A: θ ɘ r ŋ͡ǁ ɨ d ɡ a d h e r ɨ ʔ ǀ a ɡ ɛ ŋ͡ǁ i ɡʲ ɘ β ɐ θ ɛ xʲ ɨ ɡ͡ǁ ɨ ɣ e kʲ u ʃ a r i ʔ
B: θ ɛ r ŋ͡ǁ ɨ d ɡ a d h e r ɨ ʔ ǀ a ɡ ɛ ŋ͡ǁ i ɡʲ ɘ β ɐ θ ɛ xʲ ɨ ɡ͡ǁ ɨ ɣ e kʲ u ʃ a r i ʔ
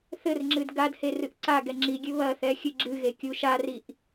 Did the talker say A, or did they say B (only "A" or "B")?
A